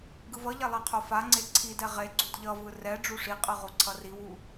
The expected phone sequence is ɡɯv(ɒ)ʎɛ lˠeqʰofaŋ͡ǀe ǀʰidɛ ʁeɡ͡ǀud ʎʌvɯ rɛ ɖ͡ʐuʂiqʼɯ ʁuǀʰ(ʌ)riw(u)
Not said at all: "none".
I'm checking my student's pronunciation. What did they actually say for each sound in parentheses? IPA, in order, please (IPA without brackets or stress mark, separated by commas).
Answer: ʌ, ʌ, u